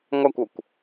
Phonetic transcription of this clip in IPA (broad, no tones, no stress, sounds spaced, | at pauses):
ŋʷ æ kʷ o kʷ